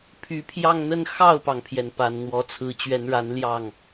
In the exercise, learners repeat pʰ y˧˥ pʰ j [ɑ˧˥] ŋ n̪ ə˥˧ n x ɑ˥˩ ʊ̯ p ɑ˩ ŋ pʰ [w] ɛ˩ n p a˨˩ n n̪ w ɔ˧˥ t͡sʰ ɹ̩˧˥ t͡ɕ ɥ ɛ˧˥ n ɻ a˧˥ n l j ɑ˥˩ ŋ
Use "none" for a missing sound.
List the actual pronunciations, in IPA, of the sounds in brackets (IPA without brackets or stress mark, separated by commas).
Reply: ɑ˥˧, j